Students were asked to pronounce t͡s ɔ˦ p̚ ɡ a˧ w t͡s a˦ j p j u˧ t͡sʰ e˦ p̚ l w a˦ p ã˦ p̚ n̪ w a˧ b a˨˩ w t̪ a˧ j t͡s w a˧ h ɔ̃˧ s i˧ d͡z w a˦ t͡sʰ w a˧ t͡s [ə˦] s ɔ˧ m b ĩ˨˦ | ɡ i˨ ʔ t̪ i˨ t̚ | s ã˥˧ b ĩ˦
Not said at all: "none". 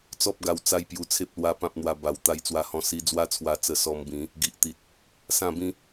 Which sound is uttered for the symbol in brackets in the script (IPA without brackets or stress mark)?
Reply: ə˧